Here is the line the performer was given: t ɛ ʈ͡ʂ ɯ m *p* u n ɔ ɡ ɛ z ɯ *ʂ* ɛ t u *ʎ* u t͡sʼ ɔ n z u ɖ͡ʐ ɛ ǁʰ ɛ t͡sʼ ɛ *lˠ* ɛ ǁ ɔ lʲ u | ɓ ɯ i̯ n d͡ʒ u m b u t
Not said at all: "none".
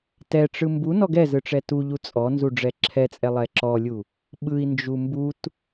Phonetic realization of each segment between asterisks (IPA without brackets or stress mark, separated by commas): b, ʈ͡ʂ, ʎ, lˠ